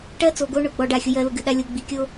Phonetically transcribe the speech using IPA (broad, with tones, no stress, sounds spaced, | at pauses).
ʈ ɜ˦ t͡s o˨ ɡ o˦ ɳ ʊ˦˨ ɡ͡b ɔ˦ ɖ a˦˨ xʲ ʊ˦ j ɜ˦ l ʊ˦ ɡ ɨ˨ ɗ a˦ lʲ o˦ ɡ͡b i˨ kʲ o˦